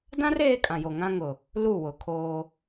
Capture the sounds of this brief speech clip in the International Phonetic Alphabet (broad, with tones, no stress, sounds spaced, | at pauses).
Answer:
d ã˦ r eː˦ kʼ ã˨ j o˨ ŋ ã˦ ŋ ʊ˨ | l u˦˨ w ʊ˨ kʰ oː˦